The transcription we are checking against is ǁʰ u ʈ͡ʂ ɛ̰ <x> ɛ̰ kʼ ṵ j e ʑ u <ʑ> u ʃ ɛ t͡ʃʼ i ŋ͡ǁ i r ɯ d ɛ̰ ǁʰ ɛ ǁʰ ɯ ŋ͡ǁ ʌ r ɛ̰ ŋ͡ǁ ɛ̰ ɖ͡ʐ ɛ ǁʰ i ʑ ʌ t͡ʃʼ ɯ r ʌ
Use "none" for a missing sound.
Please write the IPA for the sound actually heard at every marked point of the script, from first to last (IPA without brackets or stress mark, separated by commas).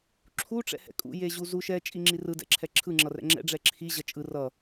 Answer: h, z